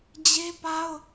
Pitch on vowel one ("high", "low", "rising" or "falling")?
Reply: high